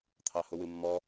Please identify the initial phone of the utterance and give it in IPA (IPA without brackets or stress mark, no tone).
t̪ʰ